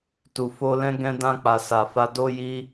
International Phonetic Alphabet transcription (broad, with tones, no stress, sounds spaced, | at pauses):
t u˨ f o˧ l ɛ̃˦ ɡ ɛ̃˧ d ã˧ k͡p a˨ s a˨ f a˧ d o˦ j i˦